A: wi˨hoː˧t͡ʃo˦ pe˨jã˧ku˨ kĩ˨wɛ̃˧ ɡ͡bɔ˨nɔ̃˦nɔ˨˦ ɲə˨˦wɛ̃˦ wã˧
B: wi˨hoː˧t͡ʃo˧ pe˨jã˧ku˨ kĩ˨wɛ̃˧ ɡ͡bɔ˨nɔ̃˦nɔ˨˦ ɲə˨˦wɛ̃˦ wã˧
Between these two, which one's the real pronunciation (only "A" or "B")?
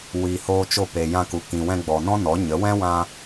B